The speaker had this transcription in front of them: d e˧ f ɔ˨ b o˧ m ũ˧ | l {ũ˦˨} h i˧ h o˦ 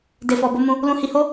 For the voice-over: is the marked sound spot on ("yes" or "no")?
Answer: no